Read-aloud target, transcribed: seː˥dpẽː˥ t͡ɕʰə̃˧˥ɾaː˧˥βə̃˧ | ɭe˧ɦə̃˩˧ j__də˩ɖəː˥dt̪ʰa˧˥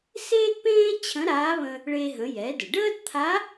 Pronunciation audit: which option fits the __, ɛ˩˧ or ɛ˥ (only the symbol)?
ɛ˩˧